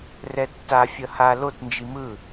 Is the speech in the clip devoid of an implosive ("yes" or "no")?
yes